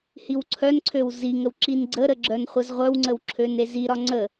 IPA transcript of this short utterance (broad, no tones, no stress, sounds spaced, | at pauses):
h i w ǀʰ œ n ǀʰ ø w z i ŋ ə w ǁ i n ɡ͡ǀ ə ɾ ə ɡ͡ǁ œ n χʷ ə z ʁʷ œ w ŋ͡ǀ ə w ǁʰ ø n e z i ɾ ɒ ŋ͡ǀ ə